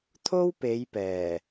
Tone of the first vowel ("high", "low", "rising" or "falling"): high